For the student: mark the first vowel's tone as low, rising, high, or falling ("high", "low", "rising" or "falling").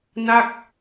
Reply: falling